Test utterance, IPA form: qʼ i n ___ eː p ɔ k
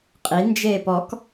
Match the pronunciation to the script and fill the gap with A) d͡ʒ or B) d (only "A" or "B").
A